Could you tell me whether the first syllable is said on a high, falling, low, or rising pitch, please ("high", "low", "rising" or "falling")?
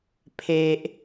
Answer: high